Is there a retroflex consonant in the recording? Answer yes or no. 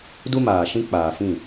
no